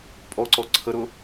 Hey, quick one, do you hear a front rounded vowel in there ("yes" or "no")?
no